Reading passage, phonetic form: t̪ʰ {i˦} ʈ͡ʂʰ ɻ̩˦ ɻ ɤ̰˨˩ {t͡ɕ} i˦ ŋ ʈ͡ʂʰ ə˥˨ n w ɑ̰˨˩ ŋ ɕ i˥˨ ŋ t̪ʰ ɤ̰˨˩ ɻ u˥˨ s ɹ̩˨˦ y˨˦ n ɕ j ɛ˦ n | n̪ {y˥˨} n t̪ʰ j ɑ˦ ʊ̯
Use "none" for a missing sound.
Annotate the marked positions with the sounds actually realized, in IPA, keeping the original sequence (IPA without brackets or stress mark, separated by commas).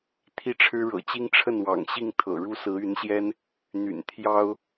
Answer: i˦, t͡ɕ, y̰˨˩